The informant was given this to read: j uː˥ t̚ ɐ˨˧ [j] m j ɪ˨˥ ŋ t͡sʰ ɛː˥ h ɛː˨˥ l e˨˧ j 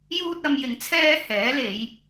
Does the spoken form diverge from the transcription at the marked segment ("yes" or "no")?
yes